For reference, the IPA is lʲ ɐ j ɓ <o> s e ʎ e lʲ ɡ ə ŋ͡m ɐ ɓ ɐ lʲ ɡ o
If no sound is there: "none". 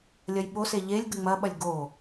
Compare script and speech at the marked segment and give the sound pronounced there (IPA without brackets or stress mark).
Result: o